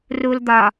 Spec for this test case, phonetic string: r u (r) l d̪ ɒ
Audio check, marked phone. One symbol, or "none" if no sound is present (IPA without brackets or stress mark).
none